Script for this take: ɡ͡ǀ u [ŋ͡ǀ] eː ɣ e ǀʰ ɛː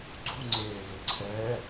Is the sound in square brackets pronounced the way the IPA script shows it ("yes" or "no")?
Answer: yes